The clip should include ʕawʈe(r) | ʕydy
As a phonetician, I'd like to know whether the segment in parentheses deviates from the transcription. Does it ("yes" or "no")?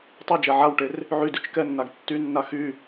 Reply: no